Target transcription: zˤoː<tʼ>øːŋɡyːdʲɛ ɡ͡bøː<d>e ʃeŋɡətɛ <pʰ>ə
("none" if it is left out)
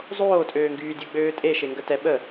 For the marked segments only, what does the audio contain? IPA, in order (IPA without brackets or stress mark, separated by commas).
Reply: tʼ, tʼ, ɓ